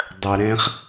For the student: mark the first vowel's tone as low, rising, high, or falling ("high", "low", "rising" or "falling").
low